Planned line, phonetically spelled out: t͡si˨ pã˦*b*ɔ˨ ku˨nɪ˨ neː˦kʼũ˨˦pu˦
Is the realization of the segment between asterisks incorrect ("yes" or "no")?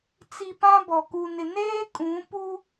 no